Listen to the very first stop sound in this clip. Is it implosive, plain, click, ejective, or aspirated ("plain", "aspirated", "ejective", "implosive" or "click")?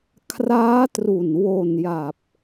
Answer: aspirated